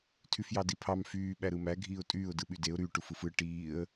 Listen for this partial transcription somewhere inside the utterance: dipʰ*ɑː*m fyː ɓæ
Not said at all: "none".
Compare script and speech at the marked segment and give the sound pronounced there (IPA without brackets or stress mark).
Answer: ɑ